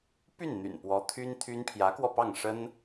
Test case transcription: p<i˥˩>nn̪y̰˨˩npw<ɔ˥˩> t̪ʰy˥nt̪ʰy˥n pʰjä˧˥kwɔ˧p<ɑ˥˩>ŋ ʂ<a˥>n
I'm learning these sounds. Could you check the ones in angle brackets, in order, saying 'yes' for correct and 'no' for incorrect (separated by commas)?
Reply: no, no, yes, no